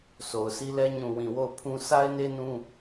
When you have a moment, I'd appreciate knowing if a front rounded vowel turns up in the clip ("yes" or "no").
no